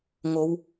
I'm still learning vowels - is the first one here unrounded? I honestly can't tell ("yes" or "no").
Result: no